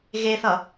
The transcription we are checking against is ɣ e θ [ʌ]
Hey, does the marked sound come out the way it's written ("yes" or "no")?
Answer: yes